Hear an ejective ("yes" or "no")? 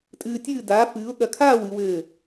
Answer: yes